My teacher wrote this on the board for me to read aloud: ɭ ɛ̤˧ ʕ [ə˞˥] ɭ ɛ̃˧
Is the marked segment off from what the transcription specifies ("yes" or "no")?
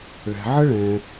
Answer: yes